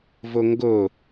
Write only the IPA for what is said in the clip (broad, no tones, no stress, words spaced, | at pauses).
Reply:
vɵŋɡɵ